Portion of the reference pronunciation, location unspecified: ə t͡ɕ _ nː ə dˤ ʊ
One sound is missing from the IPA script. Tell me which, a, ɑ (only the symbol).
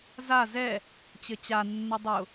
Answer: a